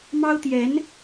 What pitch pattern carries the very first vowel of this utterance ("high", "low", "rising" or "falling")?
high